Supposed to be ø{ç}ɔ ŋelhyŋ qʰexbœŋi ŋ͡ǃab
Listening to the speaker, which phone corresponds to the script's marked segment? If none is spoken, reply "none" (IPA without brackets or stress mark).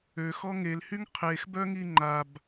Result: x